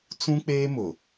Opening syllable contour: high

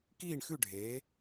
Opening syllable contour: falling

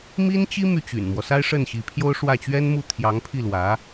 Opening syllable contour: high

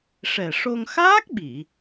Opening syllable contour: low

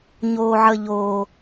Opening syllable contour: low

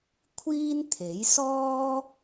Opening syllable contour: high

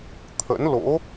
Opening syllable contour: rising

